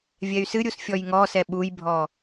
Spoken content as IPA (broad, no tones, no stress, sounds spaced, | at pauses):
vʲ ɛ y̯ s ɨ ɾʲ u s fʲ ɔ j ŋ ɔ s ɛ ɓ u j bʱ ɔ